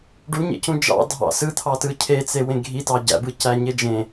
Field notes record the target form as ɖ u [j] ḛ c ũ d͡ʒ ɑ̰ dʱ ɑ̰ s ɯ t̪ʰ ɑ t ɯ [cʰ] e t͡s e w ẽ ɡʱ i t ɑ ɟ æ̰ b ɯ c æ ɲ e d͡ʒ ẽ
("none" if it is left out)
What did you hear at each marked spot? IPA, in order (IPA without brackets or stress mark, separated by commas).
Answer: ɲ, cʰ